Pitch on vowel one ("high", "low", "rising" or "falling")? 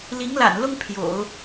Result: rising